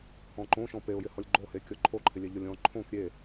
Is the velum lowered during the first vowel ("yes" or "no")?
yes